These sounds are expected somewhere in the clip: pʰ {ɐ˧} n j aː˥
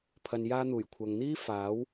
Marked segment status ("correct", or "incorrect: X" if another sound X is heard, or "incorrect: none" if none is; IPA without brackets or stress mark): correct